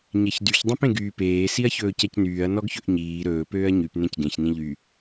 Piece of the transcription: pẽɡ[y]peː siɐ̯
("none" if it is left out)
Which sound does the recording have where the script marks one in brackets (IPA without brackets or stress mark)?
yː